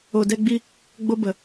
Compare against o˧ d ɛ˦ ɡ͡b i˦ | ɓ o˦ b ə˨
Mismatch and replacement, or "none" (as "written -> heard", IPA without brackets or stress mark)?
ɓ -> ɡ͡b